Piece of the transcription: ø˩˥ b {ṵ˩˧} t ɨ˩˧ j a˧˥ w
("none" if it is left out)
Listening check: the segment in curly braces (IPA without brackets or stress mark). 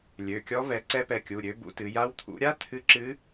ṵ˩˧